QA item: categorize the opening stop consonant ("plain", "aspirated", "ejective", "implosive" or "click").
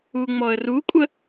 ejective